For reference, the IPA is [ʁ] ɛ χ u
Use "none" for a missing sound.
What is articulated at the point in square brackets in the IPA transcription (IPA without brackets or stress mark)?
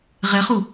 ʁ